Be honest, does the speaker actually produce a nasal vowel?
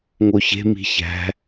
no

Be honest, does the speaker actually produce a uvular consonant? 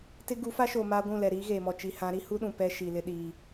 no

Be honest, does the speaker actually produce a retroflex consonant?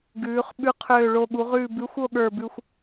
yes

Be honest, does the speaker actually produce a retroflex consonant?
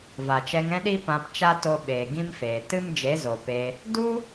no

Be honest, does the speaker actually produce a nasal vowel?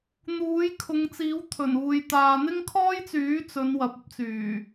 no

